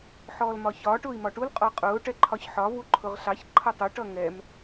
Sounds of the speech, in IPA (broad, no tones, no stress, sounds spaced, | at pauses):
ħ ɔː l m ɒ ç ɒː ʈ ʊː i̯ m ɒ ʈ u l qʼ ɔ qʼ ʊː ʈ ɛ ǃʰ ɒ ç ħ ɒ v u ǃʰ ʊ ʁ ɬ ɑ ç ǃʰ ʌ tˤ ʊ ʈ ʌ ŋ ɛ m